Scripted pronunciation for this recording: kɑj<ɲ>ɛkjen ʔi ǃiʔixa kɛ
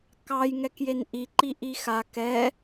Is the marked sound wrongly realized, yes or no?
yes